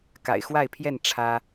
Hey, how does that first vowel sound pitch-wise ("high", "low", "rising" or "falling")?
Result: low